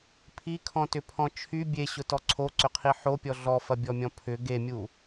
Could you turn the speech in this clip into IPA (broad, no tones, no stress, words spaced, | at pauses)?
pʰikʰɔ̃tʏpʰɔ̃ t͡ʃʰy bʲeɕʊtɔ ǀʰoǀʏqʰi ħopʲɔ ɮɔfɐbʲɔmʲɔ̃ pʰʏ ɡemʲu